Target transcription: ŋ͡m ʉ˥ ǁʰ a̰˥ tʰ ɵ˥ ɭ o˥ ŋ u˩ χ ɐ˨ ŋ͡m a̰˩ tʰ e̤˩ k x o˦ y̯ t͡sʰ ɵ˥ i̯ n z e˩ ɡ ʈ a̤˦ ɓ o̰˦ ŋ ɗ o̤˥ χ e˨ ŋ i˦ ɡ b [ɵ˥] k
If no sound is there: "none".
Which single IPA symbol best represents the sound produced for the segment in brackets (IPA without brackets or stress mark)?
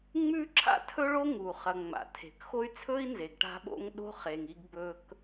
ɵ˥